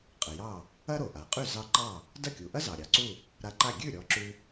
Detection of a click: present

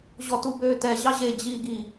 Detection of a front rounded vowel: present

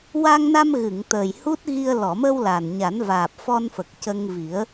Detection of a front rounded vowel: absent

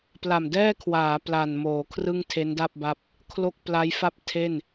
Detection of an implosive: absent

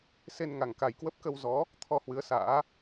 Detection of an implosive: absent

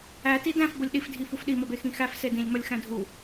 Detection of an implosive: present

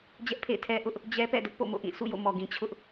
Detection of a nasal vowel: present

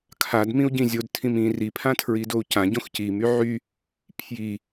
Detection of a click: absent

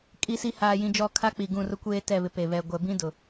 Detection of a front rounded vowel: absent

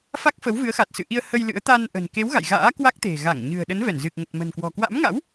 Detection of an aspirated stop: absent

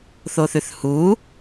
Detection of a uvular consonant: absent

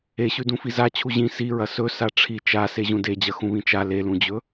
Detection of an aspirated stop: present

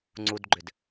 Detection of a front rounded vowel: present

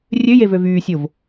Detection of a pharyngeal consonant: absent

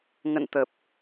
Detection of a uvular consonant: absent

